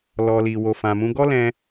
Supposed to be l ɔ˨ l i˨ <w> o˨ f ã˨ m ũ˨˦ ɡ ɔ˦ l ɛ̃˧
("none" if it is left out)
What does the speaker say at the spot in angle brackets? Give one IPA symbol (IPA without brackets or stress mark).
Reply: w